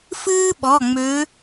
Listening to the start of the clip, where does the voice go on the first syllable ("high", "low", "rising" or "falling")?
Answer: high